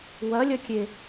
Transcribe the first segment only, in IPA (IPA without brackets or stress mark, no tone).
w